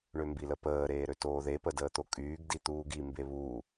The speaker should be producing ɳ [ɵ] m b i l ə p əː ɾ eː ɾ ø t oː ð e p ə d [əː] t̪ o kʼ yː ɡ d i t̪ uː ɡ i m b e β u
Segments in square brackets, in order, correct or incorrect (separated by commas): incorrect, correct